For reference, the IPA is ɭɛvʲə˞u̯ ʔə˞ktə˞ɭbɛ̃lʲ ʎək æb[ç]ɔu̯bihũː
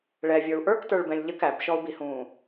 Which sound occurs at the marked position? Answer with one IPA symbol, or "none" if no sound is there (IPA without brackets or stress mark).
ʃ